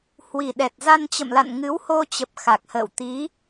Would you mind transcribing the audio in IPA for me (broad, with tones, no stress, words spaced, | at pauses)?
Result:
hwi˨˩ ɗɛ˨˩t̚za˧nt͡ɕə̰˧˨mla̰˧˨n ŋɨ˨˦who˧t͡ɕə˨˩p̚ xa˨˩k̚hə̰ː˧˨w t̪i˨˦